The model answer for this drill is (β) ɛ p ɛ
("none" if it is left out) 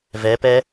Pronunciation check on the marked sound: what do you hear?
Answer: v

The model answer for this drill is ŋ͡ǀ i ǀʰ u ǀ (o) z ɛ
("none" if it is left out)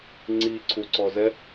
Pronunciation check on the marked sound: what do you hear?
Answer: ɔ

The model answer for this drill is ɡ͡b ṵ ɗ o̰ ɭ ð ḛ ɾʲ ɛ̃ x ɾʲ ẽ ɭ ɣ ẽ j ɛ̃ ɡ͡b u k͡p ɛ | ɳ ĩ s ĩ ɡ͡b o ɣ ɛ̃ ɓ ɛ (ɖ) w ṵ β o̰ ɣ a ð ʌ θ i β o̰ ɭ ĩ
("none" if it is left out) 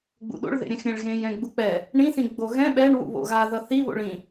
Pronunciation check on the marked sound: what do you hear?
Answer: ɳ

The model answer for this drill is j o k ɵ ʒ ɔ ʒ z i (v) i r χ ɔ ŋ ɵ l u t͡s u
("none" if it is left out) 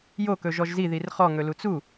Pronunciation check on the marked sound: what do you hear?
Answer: ð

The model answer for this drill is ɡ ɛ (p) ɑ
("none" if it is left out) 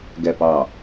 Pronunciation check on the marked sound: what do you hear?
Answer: p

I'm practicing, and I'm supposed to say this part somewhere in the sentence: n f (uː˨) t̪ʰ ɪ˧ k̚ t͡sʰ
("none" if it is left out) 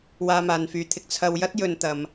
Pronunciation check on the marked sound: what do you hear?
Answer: yː˨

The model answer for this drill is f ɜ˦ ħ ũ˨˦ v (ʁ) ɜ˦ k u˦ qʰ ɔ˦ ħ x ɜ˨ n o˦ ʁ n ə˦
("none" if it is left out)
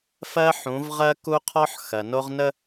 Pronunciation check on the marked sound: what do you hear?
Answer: ʁ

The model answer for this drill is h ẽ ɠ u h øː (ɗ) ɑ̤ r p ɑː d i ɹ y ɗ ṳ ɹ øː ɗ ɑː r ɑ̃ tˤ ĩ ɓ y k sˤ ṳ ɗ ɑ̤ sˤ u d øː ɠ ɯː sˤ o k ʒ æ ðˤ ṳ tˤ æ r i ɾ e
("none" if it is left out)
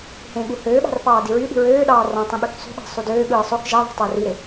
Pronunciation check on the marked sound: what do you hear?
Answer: ɓ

